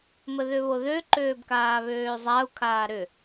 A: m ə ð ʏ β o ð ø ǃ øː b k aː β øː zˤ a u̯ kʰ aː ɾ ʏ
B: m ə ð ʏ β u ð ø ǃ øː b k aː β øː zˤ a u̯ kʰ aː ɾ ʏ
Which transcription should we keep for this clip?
A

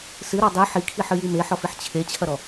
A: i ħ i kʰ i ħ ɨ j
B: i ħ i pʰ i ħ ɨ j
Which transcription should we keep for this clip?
A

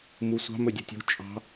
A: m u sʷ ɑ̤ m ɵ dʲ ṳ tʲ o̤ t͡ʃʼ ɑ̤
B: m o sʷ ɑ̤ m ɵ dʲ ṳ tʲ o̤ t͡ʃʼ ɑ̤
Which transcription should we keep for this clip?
A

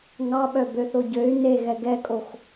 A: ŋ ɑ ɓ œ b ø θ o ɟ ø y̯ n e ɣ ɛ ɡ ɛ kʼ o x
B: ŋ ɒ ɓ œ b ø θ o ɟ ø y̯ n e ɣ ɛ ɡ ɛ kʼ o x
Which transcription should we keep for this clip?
A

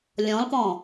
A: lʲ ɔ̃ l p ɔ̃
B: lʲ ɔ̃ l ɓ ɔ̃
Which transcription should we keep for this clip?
A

